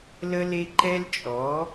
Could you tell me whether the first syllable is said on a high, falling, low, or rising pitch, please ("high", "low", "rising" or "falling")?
high